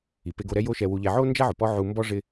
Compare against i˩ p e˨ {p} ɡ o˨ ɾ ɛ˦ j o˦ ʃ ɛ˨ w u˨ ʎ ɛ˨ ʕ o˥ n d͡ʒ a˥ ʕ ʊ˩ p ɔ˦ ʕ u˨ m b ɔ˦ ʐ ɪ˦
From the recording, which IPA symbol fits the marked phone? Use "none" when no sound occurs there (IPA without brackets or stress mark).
none